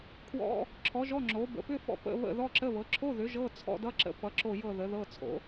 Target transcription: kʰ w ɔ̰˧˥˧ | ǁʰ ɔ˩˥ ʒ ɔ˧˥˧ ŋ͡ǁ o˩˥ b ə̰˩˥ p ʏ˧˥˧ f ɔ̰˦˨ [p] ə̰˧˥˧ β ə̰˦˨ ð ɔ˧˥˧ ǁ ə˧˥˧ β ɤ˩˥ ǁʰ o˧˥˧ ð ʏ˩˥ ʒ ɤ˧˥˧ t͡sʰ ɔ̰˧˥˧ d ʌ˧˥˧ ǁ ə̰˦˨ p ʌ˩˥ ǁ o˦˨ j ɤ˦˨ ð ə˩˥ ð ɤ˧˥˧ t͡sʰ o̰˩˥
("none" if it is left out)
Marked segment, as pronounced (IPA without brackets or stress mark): p